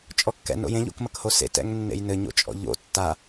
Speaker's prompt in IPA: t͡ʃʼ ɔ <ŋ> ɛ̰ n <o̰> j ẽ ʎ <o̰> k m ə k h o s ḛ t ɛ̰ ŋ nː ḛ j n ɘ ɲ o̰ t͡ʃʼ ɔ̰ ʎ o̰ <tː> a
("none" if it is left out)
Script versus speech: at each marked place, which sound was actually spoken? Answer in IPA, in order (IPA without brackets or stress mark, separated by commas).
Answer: kː, o̰, o̰, tː